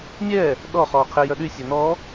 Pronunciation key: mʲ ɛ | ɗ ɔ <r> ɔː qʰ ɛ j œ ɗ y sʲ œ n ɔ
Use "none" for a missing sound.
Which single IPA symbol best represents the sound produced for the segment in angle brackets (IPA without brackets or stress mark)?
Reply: χ